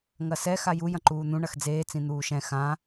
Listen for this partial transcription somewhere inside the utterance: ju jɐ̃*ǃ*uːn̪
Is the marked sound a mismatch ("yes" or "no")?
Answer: no